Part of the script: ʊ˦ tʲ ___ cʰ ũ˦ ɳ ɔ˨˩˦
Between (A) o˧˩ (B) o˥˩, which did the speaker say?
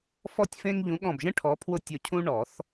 A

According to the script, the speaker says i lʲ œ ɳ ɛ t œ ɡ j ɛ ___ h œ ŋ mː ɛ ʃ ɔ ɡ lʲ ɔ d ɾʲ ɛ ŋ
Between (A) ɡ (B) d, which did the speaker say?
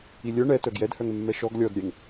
B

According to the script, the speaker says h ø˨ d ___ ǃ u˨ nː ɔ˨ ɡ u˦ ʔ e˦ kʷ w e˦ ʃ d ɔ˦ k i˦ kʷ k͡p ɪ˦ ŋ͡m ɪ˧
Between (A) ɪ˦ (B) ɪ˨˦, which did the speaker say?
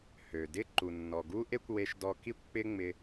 A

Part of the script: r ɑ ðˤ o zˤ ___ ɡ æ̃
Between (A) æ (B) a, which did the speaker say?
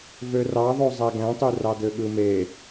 A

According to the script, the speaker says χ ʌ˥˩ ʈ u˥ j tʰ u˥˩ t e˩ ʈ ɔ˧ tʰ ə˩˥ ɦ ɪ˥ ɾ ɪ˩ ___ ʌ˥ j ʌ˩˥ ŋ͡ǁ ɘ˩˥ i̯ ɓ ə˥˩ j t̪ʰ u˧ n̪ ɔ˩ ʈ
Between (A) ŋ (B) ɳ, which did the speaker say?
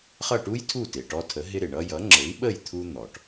B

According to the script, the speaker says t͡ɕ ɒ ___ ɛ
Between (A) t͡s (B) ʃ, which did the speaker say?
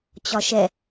B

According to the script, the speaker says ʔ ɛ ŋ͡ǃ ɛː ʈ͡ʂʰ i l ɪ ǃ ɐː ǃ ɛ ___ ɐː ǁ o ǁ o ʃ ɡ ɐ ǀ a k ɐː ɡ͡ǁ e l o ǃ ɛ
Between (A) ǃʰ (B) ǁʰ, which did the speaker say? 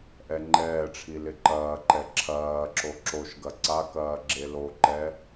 B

